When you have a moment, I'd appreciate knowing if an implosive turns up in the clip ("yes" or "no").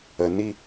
no